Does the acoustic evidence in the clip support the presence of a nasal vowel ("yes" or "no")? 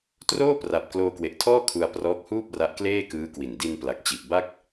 no